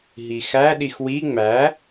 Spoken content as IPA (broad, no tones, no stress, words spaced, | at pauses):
ɦixæɗix wi ŋ͡mæ